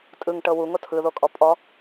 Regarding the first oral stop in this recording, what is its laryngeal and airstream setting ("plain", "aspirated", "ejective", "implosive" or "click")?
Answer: ejective